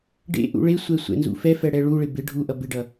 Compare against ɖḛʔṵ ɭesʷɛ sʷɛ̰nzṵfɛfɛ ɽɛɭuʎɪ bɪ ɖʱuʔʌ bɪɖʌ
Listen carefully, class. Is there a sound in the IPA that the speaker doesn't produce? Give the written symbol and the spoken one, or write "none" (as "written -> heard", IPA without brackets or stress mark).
ʎ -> ɭ